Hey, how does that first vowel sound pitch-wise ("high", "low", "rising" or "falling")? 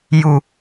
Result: low